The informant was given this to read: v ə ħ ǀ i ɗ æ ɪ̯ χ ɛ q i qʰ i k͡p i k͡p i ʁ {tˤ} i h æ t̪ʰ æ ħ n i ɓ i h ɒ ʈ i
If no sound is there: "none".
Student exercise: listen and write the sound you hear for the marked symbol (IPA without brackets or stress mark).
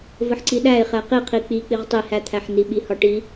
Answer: tˤ